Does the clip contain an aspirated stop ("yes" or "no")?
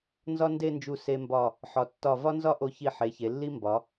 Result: no